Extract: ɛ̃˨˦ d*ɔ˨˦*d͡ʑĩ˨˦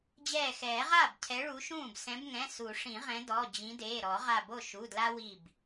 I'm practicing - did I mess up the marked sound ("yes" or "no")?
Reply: yes